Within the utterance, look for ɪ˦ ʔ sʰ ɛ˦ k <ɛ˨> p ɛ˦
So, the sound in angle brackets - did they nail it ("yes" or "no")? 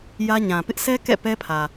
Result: no